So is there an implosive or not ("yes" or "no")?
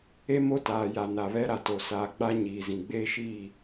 no